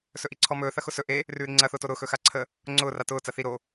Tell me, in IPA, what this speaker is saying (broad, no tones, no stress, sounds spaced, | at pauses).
s ɵ ʔ i ǀʰ ɔ m ɵː θ ɐ x ʊ s ɵ ʔ e | r ʉː ɾ i ŋ͡ǀ ɐ θ ʊː t o ɾ ʊː x ɵ x a ǀʰ ə | ŋ͡ǀ ʊː r a t ʊː t͡s ɐ θ i ɾ o